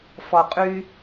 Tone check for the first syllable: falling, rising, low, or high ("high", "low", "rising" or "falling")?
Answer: low